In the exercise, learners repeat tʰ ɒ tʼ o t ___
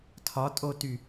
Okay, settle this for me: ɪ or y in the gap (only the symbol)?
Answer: y